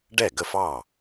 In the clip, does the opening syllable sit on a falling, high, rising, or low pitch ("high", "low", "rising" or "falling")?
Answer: falling